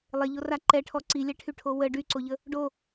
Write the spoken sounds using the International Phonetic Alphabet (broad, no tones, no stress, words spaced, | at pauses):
lˠeʎora ǃɛʈʰɔ ǀilʲɛʈʰyʈʰo wə ɖyǀoʎə | ɖo